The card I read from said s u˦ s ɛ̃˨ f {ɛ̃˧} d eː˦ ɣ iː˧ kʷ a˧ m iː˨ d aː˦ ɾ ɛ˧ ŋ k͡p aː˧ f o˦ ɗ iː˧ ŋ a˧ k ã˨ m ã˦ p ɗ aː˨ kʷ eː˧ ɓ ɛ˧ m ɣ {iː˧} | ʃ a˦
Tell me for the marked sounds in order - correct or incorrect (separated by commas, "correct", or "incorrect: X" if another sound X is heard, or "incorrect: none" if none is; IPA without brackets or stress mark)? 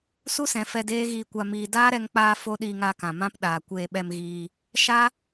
incorrect: ɛ˧, correct